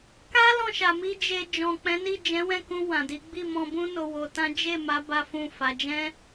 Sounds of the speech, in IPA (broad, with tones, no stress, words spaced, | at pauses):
ka˦ lɔ̃˦˨ʃa˨mi˧ d͡ʒe˨ d͡ʒɔ̃˨k͡pɛ̃˨˦ni˦˨ d͡ʒɛ̃˨˦wɛ̃˦˨kũ˧ wã˨di˨˦ ɡ͡bi˦˨mɔ̃˧bũ˦ no˧wo˧tã˦ d͡ʒe˦˨ma˨˦ ba˦fũ˦˨fa˨˦ d͡ʒɛ̃˦